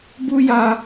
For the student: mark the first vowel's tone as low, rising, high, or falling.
high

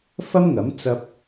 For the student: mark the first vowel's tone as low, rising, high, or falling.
high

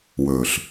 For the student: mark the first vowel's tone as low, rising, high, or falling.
low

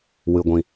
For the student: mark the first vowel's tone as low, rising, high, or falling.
low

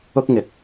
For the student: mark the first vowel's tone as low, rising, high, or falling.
high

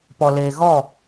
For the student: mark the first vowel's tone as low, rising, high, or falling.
low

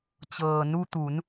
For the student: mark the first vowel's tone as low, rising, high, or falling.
low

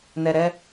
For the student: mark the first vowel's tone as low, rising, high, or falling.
low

